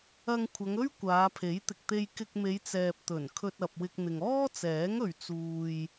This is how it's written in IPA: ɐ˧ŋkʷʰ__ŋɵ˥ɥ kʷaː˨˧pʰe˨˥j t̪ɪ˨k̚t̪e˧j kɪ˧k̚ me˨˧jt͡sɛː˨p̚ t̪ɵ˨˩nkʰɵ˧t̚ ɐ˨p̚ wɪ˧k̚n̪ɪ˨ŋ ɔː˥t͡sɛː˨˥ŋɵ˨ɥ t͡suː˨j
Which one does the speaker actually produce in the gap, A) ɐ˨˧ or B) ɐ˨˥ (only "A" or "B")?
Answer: A